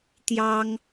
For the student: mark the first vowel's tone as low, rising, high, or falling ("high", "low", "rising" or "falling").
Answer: high